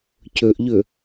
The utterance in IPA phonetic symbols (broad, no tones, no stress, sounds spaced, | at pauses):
c ɵ ʔ ʎ ɵ